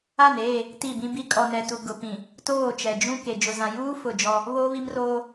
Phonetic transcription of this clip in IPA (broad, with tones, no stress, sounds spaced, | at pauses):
a˦˨ n eː˦˨ | t i˦˨ b ĩ˦ b i˦ kʼ ɔ˨ n ɛ˨ t u˨ ɡ ʊ˨ p ĩ˨ | t oː˦˨ t͡ʃ ɛ˨ d͡ʒ ũ˦ k e˨ d͡ʒ ʊ˨ z ã˨ j uː˦ f ʊ˦˨ d͡ʒ ɔ˦ | β oː˦ β i˦ m r oː˦